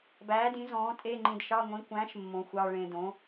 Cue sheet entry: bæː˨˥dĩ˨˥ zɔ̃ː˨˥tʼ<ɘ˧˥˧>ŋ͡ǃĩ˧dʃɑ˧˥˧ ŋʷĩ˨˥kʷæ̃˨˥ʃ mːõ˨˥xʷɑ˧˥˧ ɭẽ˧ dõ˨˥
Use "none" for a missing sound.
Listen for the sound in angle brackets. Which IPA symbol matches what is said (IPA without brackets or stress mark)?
e˧˥˧